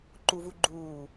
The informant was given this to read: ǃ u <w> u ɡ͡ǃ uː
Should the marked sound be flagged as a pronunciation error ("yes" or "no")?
yes